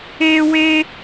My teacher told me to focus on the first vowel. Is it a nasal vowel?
no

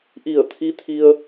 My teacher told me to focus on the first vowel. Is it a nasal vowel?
no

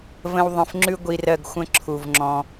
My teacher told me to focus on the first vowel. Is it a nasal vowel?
yes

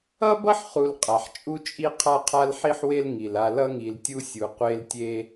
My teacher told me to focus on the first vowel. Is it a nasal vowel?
no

